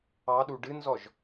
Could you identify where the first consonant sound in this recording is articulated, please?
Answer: alveolar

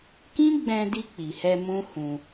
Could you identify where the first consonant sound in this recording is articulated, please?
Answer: velar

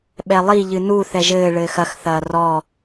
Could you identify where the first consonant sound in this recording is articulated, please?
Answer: labial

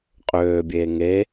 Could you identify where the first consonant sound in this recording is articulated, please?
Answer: uvular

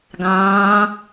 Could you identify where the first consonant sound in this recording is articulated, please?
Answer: velar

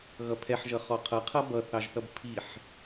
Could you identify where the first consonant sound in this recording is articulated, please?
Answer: velar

